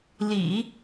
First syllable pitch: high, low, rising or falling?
low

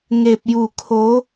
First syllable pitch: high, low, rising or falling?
low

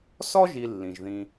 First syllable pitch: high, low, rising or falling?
high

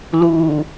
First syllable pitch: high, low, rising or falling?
low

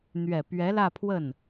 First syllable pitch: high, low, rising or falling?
low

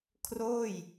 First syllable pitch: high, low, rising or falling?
falling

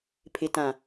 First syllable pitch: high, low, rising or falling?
low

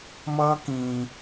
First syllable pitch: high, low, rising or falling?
high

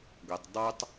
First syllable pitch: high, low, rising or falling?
low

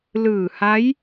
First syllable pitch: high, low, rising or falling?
low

